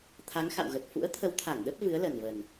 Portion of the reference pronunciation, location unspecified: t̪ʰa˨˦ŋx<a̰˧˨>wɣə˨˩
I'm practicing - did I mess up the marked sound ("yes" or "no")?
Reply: no